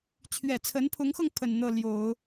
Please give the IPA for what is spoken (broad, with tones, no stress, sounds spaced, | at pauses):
t͡ɕʰ ɥ ɛ˨˩ t͡sʰ ə˧˥ n pʰ ʊ˧˥ ŋ x ɤ˧ ŋ pʰ ə˨˩ n n̪ ɤ˥˩ l j o˨˩˦ ʊ̯